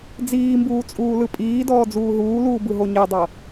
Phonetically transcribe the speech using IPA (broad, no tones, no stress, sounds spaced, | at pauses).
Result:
d͡z iː m b uː t͡sʼ uː l ɯ pʼ iː d ɔː d͡z uː ɦ uː l uː b ɯ ɦ o ɲ e dˤ ɤ